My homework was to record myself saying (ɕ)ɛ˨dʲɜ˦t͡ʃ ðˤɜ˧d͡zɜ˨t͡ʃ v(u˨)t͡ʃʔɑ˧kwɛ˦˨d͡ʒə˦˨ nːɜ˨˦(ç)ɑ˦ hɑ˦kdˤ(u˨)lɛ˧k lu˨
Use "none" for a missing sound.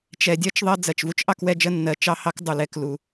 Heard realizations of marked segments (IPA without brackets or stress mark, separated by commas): t͡ʃ, u˦, t͡ʃ, u˨